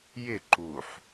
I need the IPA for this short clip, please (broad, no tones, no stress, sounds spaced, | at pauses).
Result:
j ɪ ǃ u ħ